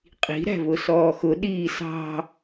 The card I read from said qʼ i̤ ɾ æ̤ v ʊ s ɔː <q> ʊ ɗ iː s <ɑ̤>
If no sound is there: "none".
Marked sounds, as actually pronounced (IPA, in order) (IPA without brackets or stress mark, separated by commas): x, ɑ̤